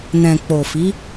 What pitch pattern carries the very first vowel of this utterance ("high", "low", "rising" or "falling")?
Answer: low